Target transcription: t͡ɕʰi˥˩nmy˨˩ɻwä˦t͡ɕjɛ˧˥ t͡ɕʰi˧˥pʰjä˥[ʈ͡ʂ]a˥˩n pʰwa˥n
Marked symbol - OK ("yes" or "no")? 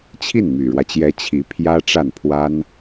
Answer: yes